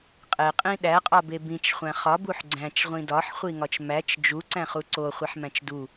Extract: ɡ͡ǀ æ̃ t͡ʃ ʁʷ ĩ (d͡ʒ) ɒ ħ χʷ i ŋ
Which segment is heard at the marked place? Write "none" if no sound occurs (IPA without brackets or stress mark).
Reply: d